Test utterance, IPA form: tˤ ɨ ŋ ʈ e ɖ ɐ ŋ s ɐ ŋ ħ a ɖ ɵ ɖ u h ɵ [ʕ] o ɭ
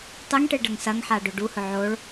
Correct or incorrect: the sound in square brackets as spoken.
correct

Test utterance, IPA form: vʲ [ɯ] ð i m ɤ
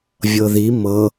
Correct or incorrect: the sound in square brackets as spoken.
incorrect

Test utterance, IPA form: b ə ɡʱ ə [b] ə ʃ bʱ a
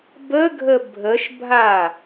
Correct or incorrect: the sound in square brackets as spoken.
incorrect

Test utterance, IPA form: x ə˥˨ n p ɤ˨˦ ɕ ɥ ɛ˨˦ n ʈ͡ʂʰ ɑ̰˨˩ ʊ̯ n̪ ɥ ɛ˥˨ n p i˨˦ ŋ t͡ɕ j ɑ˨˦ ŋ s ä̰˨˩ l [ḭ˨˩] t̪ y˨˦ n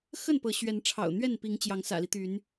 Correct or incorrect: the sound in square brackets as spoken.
incorrect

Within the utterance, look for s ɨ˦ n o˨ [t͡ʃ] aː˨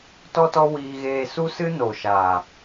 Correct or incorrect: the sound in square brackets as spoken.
incorrect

